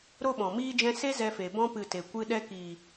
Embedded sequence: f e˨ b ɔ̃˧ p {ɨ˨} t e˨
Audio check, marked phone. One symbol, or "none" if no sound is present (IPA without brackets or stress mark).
ɨ˨